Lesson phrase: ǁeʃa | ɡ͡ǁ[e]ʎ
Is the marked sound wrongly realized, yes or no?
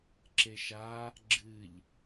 yes